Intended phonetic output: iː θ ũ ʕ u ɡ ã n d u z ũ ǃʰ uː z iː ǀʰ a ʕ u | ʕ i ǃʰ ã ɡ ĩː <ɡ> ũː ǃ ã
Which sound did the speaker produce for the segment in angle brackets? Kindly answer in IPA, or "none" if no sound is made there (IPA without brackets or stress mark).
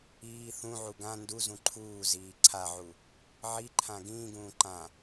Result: ɡ